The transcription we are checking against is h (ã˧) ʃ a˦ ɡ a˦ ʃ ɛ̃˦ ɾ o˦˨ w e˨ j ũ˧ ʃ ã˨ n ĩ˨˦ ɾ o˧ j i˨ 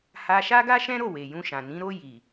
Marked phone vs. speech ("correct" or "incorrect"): incorrect